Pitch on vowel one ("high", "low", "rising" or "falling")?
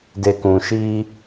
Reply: low